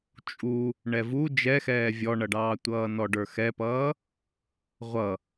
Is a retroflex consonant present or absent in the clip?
present